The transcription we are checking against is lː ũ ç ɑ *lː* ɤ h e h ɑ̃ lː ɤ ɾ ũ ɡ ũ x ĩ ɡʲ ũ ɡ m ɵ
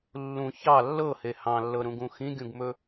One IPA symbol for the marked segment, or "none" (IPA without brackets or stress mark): lː